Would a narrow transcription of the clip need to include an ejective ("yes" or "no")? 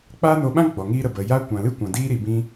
no